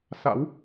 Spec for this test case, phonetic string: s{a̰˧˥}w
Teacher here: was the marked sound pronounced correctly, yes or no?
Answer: yes